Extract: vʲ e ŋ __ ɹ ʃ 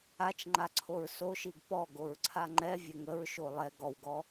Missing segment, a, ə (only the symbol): ə